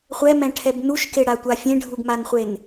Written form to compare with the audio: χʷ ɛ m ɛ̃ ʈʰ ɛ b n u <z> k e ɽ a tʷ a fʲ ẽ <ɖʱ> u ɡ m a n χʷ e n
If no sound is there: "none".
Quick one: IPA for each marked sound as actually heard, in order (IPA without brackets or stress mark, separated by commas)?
ʃ, ɖʱ